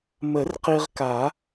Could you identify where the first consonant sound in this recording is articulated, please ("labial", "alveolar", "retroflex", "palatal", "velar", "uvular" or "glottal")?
labial